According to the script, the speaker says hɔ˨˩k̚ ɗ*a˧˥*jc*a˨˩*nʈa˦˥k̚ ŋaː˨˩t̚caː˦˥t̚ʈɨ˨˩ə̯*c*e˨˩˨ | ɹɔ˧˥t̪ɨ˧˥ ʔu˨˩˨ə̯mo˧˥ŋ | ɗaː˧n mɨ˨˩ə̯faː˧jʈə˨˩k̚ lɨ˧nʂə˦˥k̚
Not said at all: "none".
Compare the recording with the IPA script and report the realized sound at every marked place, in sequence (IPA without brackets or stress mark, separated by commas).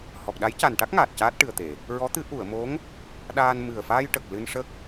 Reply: a˧˥, a˨˩, t̪